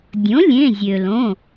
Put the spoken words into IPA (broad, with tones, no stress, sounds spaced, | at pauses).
dʲ õ˩˥ lʲ ẽ˩˧˩ zʲ ø˩ l õ˩˧˩